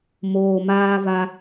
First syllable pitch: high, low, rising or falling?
low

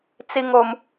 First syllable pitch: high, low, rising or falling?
low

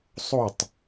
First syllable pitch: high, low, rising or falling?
falling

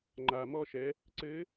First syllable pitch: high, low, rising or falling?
low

